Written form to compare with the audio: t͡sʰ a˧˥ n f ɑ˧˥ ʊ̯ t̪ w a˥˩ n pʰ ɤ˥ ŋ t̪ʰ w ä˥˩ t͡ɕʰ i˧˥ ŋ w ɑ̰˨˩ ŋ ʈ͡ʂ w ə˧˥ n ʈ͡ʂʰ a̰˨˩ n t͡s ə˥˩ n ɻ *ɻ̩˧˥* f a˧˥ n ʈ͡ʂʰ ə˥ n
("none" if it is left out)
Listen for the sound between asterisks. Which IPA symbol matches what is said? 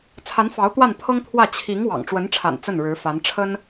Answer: ɻ̩˧˥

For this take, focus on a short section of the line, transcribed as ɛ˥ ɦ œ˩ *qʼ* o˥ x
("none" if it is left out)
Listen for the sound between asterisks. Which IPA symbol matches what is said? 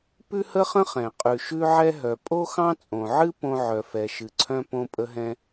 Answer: pʼ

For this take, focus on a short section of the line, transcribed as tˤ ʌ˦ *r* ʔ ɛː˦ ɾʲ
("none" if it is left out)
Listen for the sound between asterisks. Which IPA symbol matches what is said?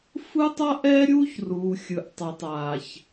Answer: none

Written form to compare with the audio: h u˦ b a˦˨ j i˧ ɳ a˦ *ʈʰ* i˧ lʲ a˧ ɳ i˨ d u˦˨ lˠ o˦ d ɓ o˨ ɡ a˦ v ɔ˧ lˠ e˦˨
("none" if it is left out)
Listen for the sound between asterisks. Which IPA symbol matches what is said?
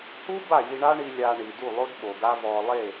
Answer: ɳ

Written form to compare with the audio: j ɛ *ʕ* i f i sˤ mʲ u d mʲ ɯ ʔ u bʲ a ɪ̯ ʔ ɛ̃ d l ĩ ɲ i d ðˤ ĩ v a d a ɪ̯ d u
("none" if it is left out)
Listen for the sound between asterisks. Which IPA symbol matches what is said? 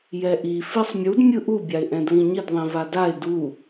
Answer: ʔ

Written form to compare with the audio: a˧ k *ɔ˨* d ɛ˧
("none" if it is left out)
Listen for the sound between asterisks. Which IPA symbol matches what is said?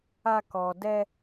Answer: ɔ˨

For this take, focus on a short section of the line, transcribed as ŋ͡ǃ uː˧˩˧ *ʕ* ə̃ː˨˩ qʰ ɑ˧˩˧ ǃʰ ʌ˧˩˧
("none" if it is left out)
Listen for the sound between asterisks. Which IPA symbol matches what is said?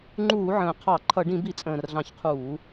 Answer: ʕ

